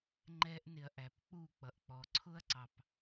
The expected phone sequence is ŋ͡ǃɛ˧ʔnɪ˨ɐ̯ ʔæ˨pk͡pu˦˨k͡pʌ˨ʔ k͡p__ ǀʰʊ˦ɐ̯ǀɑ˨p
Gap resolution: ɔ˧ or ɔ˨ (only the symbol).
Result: ɔ˨